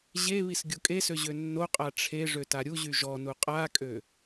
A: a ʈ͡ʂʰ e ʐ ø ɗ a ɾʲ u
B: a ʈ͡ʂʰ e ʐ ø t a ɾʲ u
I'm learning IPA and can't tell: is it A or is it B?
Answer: B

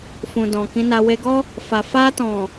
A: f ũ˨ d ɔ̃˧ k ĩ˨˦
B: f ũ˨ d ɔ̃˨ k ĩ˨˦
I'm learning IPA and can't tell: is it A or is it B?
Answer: B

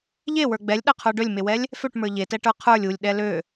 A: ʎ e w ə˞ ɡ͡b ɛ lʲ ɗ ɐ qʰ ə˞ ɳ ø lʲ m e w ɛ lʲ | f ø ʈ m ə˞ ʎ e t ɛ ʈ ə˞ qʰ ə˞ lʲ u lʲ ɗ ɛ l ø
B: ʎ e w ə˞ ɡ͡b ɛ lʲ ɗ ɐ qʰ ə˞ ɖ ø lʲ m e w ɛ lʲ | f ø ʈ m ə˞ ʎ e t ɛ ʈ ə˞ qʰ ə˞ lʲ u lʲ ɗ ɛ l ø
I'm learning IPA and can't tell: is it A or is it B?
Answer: B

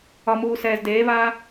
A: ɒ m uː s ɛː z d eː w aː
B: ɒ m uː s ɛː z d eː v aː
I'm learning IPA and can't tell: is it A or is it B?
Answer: B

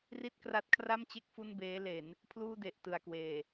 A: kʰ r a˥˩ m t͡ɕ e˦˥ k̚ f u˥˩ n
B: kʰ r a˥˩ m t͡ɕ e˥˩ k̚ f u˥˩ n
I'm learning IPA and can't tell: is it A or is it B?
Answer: B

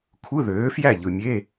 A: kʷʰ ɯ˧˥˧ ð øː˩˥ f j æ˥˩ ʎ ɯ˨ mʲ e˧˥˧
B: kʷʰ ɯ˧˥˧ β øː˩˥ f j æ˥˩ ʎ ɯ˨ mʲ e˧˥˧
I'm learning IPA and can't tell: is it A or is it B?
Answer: A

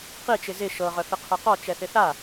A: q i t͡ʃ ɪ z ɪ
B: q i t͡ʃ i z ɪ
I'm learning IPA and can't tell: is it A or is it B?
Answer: A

